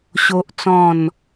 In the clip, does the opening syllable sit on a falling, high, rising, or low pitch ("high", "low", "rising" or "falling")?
high